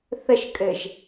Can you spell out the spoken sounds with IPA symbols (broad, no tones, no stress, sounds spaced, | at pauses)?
θ ə ʃ kʼ ɘ ʒ